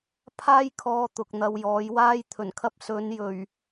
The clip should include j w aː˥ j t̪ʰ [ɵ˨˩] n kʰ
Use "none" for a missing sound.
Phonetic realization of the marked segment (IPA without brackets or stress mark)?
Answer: ɵ˨˩